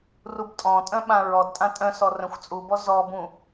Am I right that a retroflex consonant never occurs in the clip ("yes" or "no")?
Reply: yes